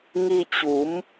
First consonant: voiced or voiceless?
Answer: voiced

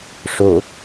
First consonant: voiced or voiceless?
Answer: voiceless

